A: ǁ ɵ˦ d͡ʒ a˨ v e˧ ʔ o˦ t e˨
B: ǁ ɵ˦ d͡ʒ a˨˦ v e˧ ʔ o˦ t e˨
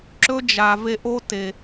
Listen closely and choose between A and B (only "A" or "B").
A